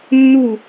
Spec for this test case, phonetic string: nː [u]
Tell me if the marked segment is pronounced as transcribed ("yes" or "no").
yes